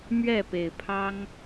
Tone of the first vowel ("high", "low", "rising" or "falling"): falling